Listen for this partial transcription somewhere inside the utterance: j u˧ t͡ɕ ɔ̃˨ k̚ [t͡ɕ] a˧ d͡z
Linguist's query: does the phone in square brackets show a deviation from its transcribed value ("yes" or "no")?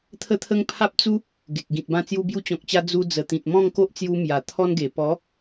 no